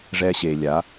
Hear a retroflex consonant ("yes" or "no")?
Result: yes